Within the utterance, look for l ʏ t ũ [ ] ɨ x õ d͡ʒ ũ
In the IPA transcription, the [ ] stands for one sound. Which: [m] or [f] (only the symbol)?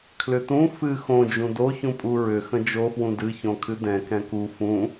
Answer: f